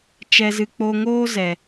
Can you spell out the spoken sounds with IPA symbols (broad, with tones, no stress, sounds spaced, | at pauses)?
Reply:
t͡ʃ ɛ˧ z ɨ˧ k͡p o˧ ŋ oː˦ z ɛ˨